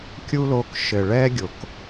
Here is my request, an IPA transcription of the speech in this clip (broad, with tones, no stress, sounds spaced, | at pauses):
kʲ u˦ l o˧ k ʃ ɘ˨ ɭ ɛ˦ ɡʲ o˨ k